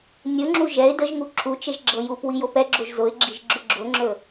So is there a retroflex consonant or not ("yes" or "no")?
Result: no